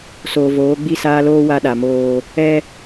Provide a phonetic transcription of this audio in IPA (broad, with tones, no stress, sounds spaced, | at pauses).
s oː˨ v oː˨˦ ɡ͡b i˦ s aː˦ l oː˦ w a˦ ɗ a˨ m oː˦ | ɛ˦